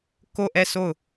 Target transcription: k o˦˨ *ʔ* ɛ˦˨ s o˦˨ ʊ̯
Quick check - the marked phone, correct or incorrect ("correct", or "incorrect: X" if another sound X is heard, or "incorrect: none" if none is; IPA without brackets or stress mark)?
correct